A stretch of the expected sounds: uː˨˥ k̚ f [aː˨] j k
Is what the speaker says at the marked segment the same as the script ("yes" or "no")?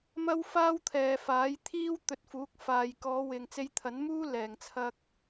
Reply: yes